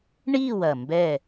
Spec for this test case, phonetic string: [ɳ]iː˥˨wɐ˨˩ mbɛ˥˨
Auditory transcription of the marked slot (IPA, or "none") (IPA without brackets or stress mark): ɳ